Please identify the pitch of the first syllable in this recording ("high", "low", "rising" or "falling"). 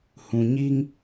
low